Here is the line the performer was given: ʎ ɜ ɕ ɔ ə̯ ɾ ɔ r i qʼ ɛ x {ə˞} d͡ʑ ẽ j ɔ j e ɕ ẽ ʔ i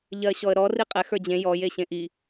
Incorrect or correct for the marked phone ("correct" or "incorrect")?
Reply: correct